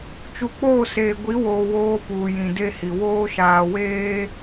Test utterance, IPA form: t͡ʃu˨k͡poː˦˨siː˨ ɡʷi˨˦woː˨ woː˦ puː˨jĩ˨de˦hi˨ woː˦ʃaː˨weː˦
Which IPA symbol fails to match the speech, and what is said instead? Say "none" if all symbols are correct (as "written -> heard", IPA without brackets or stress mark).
iː˨ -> eː˨